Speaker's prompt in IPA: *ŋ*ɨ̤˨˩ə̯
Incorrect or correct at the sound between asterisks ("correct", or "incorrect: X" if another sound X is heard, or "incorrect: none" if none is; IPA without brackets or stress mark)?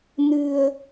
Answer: incorrect: n